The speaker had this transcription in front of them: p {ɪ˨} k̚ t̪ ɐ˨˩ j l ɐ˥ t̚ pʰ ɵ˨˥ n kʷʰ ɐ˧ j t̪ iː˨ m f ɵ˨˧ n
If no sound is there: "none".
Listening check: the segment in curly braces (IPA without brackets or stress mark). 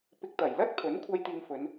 ɪ˨